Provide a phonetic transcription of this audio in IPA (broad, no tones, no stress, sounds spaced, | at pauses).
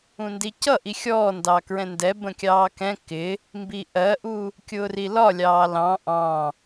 ũ n d i c ʌ ʔ i xʲ ɔː n d ɑ k ɹ ɛ̃ n d ɛ b ə̃ kʲ ɑː k ɛ̃ k ɪ | m b i ʔ ɜ ʔ u | kʲ ʊː r i l ɒ lʲ ɑː l ɑ̃ ʔ ɑ̃